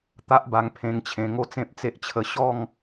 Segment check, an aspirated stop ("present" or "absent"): present